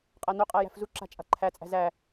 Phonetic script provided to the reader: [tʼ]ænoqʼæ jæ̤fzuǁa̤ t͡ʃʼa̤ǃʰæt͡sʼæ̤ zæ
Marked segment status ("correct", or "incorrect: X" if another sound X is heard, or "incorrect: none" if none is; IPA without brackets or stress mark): incorrect: qʼ